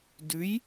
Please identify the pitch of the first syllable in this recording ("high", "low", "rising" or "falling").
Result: rising